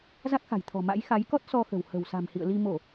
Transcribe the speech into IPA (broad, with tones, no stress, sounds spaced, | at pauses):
z a˦˥ k̚ x a̤˨˩ j t̪ʰ ɔ̤˨˩ m a̰˧˥ j x a˨˦ j k ɔ˦˥ t̚ s ɔ˧ x ə̤˨˩ w h ə̤˨˩ w s a̤˨˩ m h ḭ˧˨ ə̯ l i˧ m o˧˩˨